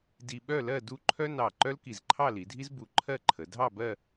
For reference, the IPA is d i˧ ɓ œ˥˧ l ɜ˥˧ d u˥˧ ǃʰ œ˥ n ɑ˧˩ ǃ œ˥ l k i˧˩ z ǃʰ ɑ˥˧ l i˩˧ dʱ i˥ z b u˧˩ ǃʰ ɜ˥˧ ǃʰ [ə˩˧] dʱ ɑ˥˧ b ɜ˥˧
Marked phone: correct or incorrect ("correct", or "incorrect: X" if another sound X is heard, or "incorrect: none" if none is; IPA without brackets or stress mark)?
correct